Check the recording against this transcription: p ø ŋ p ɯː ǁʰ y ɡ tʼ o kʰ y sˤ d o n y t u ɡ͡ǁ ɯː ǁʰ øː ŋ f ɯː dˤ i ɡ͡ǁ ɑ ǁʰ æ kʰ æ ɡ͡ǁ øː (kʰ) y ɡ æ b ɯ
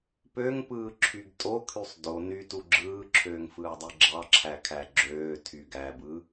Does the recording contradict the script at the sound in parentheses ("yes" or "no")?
yes